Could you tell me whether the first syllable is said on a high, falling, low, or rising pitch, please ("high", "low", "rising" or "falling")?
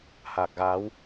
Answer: low